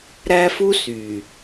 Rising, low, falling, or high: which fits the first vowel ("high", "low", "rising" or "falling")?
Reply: high